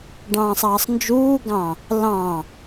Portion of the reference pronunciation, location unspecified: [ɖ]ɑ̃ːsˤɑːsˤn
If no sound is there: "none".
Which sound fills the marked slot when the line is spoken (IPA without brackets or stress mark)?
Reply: ɖ